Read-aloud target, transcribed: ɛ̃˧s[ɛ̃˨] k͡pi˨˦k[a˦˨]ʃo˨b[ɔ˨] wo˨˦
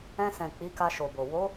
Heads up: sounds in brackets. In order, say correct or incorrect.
correct, incorrect, incorrect

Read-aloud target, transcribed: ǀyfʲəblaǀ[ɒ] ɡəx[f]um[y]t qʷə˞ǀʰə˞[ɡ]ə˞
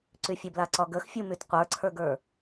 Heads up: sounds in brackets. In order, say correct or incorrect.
correct, incorrect, correct, correct

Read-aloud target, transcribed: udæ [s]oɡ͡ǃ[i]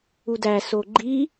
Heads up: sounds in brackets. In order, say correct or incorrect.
correct, correct

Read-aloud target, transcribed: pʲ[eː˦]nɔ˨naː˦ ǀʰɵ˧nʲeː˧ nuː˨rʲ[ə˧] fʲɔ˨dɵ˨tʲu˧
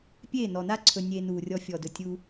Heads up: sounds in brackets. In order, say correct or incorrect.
incorrect, incorrect

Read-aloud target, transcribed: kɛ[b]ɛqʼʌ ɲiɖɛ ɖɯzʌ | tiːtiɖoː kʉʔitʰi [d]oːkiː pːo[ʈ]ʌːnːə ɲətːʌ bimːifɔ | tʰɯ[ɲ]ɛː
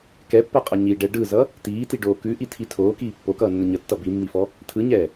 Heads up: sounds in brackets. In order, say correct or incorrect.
incorrect, incorrect, incorrect, correct

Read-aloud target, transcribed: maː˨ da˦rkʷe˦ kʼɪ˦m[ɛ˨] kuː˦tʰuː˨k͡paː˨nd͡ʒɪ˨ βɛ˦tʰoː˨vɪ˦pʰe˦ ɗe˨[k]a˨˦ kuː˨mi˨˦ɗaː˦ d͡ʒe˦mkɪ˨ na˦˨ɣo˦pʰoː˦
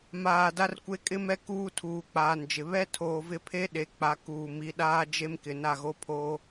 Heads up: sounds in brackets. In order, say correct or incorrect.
incorrect, incorrect

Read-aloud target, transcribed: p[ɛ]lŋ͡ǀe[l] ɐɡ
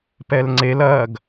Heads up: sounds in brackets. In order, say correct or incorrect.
correct, correct

